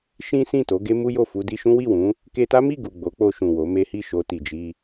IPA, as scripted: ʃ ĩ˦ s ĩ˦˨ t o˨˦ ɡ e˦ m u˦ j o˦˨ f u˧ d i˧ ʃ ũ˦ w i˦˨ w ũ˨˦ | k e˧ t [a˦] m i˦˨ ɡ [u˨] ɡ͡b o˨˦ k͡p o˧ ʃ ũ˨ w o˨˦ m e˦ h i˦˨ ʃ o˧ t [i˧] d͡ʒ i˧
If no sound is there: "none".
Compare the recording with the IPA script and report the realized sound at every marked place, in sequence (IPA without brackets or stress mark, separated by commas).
a˦, u˨, i˨